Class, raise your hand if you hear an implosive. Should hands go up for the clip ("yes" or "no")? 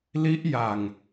no